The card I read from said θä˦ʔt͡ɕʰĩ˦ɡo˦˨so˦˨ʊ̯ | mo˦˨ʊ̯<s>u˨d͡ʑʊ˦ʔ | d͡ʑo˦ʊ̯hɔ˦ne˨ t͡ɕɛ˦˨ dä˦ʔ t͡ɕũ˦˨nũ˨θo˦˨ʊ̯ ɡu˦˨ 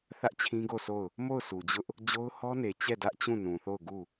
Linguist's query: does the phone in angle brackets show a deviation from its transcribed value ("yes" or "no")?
no